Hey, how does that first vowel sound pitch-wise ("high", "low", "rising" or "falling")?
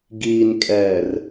low